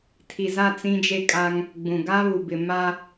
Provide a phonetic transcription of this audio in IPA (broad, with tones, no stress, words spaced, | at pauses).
tʰi˨za˦˨ t͡sĩ˦d͡ʒe˦kʼa˦ŋ | ɡ͡bũ˨ ɡa˦ βu˨bɪ˨ ma˦